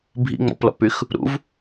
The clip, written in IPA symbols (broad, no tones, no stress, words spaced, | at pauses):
bʱḭŋ͡mɔ̰plɔ̰pyx | ɾṵv